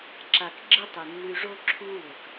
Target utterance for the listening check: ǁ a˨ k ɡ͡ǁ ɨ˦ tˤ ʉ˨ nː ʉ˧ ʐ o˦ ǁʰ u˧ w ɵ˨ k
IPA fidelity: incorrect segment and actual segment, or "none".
none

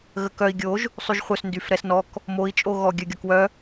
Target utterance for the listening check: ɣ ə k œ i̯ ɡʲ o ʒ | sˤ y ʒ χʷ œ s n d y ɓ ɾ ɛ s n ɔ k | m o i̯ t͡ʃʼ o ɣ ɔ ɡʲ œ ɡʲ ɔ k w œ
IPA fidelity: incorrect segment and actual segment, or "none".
ɓ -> f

